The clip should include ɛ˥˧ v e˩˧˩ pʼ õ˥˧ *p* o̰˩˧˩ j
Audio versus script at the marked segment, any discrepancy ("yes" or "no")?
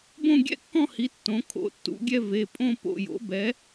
no